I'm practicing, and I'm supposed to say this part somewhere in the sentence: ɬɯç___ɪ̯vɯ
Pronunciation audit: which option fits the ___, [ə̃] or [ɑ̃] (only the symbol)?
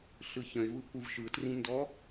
ə̃